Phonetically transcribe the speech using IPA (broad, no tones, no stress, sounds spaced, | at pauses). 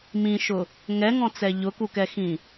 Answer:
m ĩ ʃ ʊ | ŋ ɛ ŋ ɔ̃ t͡s ɛ ʎ ʊ k u k ɛ x ĩ